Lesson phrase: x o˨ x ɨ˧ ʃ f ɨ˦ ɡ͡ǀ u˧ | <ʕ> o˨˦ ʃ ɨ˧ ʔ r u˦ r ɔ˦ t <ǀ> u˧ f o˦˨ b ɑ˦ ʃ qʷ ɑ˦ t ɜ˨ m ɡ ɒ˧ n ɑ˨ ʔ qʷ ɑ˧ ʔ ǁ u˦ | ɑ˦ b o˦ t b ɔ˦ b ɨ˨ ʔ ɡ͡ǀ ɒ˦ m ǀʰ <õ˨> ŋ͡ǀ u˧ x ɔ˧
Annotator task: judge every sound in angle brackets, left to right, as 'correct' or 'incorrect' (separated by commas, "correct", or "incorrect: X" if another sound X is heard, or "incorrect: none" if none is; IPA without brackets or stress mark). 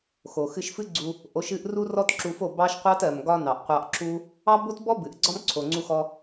incorrect: ʔ, incorrect: ǁ, incorrect: o˨